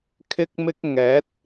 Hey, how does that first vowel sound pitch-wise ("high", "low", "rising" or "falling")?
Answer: high